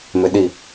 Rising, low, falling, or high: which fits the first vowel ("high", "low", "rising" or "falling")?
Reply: low